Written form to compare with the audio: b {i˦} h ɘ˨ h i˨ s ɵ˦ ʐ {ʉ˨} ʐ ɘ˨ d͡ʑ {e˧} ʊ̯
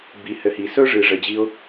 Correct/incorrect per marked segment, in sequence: incorrect, incorrect, incorrect

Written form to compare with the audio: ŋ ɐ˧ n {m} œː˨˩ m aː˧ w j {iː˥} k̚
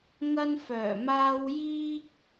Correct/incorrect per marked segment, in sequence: incorrect, correct

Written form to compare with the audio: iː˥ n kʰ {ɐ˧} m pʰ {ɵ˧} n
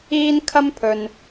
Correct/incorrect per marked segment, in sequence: incorrect, correct

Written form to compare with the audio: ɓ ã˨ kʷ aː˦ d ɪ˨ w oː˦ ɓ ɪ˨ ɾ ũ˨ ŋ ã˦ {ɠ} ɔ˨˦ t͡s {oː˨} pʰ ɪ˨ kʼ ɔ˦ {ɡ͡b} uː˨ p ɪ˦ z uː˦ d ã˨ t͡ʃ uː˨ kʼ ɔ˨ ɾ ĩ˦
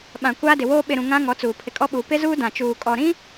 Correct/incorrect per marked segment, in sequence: incorrect, incorrect, incorrect

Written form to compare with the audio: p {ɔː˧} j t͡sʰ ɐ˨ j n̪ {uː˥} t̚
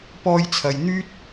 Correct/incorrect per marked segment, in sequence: correct, incorrect

